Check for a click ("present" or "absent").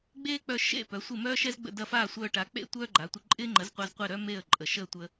present